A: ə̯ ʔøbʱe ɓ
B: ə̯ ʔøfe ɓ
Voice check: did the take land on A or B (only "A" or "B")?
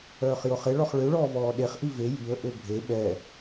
A